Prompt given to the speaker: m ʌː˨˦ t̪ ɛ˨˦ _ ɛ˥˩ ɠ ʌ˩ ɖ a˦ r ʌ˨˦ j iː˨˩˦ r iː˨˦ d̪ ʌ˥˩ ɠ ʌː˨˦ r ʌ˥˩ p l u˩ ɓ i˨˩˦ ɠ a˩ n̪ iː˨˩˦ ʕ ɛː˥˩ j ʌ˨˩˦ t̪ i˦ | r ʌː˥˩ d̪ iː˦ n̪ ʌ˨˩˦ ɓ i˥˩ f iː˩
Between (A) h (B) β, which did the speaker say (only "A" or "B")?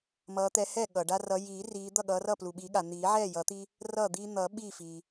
A